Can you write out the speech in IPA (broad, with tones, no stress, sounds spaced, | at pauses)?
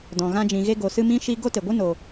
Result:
d ɔ̃˨ ɣ ã˧ d͡ʒ ĩ˨ ɣ e˧ ɡ o˨ s ɨ˧ m ĩ˦ ʃ i˦ ɡ o˦ t e˨ ɡʷ ɨ˦ n o˨